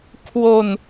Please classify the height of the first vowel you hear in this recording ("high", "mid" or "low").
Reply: mid